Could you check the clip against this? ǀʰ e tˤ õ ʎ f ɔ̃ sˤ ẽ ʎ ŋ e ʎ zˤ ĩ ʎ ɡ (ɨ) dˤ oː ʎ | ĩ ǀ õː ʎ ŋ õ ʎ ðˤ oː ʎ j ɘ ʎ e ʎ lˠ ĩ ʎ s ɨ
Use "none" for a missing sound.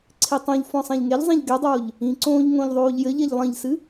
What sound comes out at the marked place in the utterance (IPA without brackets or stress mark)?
ɛ